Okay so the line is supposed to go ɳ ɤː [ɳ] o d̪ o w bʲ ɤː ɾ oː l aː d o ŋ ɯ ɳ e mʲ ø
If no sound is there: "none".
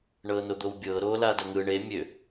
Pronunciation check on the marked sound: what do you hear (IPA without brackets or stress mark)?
n